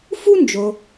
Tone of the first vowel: high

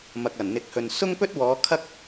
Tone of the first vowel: low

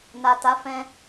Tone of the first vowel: low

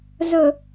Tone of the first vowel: low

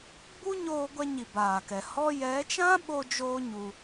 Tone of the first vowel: high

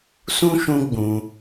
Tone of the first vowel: high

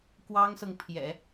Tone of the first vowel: high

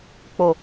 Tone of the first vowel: low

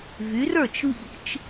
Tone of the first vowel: rising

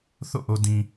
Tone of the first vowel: falling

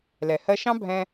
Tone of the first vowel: low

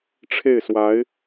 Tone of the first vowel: falling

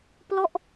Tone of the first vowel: falling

